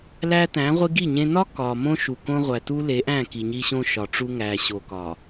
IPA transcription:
l æ˦ t æ̃˨˦ ʁʷ i˦ ɡ i˦˨ ɲ ẽ˦ n ɒ˦ k ɒ˨ m õ˦ ʃ u˨ k õ˦ ʁʷ æ˨ t u˦ l e˨˦ ʔ æ̃˦˨ k i˨ ɲ i˦ ɕ õ˦ ʃ ɒ˨ ʈ͡ʂ u˦ ŋ æ˨ ɕ o˨ k ɒ˨

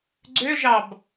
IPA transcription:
ɡ͡ǀ ø ʒ ɑ b

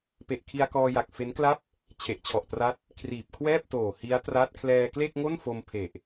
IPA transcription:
p e˨˩ ʔ kʰ i˧ a̯ k ɔː˧ j a˨˩ k̚ f e˦˥ n k l a˥˩ p̚ | t͡ɕʰ e˨˩ ʔ t͡ɕʰ ɔ˨˩ ʔ t r a˦˥ t̚ | kʰ r iː˨˩ p̚ kʰ w ɛː˥˩ p̚ t oː˨˩ h i˦˥ a̯ t r a˦˥ t̚ kʰ l ɛː˧ k l e˥˩ k̚ ŋ o˥˩ n f o˧ m pʰ e˨˩ ʔ

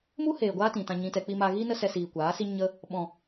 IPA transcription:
m u˦ h eː˨ ɡʷ aː˦ t ĩ˨ t ã˧ ɲ ĩ˧ t ɛ˧ k͡p i˧ m a˧ ɣ iː˦ n ə˦ s ɛ˧ s iː˨ kʷ aː˨˦ s i˦ ɲ ə˦ | ɓ ɔ̃˨

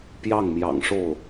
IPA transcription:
p j ɑ˥˩ ŋ m j ɑ̰˨˩ ŋ ʂ o˥˩ ʊ̯

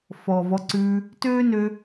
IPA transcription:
f ɔː˨ v ɔ˧ ǀ ʉː˧ | t øː˦ n ø˧

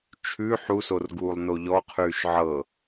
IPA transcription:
t͡ʃʰ ʉ ħ u s o r ɡ uː lˠ n o ʎ ɔ qʰ ʉː ʃ ʕ ɤ

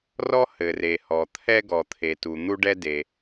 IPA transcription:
r ɔ˥ h ɘ˩ r e˩ h ɔ˩ t̪ʰ ɛ˥ ɡ ɔ˩ t̪ʰ e˩ t u˩ n̪ u˥ ɖ ɛ˥ d e˩

